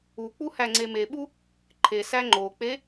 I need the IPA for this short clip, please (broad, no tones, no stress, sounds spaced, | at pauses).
u k͡p u h æ ŋ͡ǀ e m e ɓ u | ǃʰ e s æ ŋ͡ǃ o k͡p e